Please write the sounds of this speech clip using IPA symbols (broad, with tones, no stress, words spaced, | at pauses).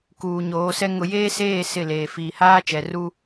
kuː˨ɲoː˨˦sɛ˦ ŋʊ˨ jeː˦seː˦˨ sɪ˦˨leː˨ fiː˨haː˦t͡ʃɛ˨ru˦